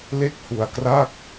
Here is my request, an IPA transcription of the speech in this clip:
l e˥˩ k̚ h u˧ a̯ k r a˥˩ k̚

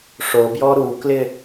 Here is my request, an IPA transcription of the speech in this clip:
ʂ o b j ɔ ɾ u k l ɪ

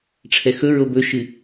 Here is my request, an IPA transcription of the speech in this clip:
ʈ͡ʂʰ ɛ x ɵ ɹ o b ɵ ʃ ɨ

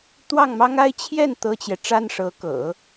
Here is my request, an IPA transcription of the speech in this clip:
t̪ w ɑ˥˩ ŋ m ɑ˥ ŋ a˥˧ ɪ̯ t͡ɕʰ j ɛ˥˩ n t̪ ɤ˥ t͡ɕ j ɛ˨ ʈ͡ʂ a˥ n ʂ ɤ˧˥ k ɤ̰˨˩˦

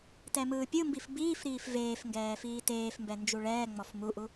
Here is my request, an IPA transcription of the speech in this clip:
t ɛ m ɯː pʲ ɯ m b i f b iː f ɾ iː f v eː f ŋ ɡ ɛː f iː t eː f m b ɛ n d͡ʒ u ɭ ɛː ŋ͡m ɔ f m u ʔ u

